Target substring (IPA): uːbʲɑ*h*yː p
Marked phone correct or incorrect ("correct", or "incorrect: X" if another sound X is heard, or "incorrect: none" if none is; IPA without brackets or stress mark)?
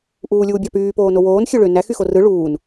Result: incorrect: p